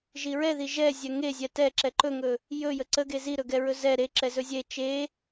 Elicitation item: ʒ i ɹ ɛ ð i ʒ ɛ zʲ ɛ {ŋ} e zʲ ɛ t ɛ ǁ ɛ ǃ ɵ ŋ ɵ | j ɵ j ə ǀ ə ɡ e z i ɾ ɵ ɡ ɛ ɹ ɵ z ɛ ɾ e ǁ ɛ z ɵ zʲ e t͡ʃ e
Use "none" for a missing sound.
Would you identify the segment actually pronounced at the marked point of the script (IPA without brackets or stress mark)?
ŋ